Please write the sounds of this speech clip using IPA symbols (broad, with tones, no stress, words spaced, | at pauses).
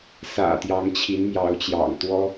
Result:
sä̰˨˩t̪jɑ˨˦ŋ t͡ɕʰi˨˦nmjɑ˨˦ʊ̯t͡ɕjɑ̰˨˩ŋ t̪wɔ˦